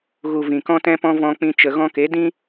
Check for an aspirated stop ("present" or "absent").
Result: absent